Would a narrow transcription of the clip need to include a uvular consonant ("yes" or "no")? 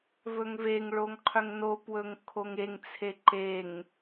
yes